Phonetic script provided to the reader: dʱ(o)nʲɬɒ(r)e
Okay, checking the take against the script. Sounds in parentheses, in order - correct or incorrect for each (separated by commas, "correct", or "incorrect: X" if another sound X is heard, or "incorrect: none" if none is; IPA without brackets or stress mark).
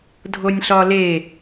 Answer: correct, incorrect: l